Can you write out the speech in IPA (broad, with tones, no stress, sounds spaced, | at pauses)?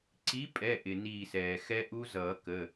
ǀ i˨˥ pʼ ɛ˩˧˩ ʔ ɪ˩ n iː˧˩ s ɛː˩ x ɛ˦˥ ʔ u˦˥ z ʌː˨˩˦ k ə˩˧˩